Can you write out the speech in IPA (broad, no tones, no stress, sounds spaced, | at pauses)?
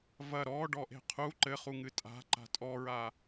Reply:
v ɐ ɾ ɔ ɖ ɔ ʔ e̤ qʰ u ǃ ɘ χ u ŋ ɨ tʼ a̤ ǃ a̤ tʼ ɔ ɹ a